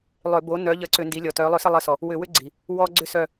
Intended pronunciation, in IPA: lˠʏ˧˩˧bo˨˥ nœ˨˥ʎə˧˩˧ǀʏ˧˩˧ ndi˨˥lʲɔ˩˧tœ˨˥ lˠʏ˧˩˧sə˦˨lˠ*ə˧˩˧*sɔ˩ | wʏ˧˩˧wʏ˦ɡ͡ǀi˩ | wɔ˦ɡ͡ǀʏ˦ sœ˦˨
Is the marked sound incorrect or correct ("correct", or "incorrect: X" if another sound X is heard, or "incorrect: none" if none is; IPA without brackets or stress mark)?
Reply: correct